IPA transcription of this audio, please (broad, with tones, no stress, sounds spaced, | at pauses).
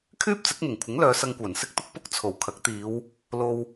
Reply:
kʰ yː˥ p̚ t͡s ɪ˨˥ k̚ m ɪ˨˩ ŋ kʷʰ ɪ˨˥ ŋ l œː˨˧ s ɐ˧ ŋ kʷ œː˨˩ n s ɪ˧ k̚ t̪ ʊ˧ k̚ p ʊ˥ k̚ t͡sʰ o˨˩ w kʰ ɐ˨˥ k̚ t̪ iː˨˧ w | l o˧ w